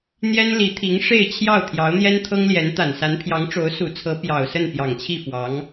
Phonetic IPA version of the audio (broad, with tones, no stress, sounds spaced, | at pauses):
n̪ j ɛ˥ n l i˧˥ t̪ʰ i˧˥ ŋ ʂ e˥˧ ɪ̯ t͡ɕʰ j ɑ˥˩ ʊ̯ t̪ʰ j ɑ˧˥ ʊ̯ n̪ j ɛ˥ n t̪ʰ ɤ˥ ŋ l j ɛ˧˥ n t̪ a˨˩ n s a˧˥ n pʰ j ɑ˧˥ ŋ ʈ͡ʂ o˧˥ ʊ̯ s u˨˩ t͡sʰ ɤ˧˥ p j ɑ˨˩ ʊ̯ s ə˥˩ n p j ɑ˨˩ ŋ t͡ɕʰ i˥˩ f w ɑ˧˥ ŋ